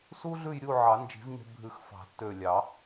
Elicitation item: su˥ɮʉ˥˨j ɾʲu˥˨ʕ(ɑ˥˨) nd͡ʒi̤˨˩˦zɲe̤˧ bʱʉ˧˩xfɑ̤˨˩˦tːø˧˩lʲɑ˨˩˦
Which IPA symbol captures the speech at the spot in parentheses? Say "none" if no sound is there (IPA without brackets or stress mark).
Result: ɑ˨˩˦